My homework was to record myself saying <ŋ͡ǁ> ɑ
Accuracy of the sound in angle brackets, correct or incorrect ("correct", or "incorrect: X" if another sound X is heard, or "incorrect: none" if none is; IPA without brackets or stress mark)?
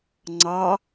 incorrect: ŋ͡ǀ